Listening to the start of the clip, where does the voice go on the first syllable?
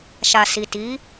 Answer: low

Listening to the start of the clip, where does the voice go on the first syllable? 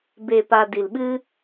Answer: low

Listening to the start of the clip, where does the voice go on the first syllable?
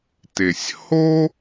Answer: low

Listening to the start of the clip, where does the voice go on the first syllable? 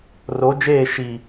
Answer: rising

